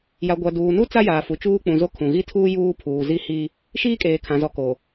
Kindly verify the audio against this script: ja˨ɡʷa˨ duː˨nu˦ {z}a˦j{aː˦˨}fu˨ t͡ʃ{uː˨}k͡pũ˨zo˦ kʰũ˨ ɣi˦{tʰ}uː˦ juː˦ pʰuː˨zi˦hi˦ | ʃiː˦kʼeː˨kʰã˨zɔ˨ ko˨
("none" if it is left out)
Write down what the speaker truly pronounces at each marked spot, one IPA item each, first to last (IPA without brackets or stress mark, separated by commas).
t͡s, aː˨, uː˦, tʰ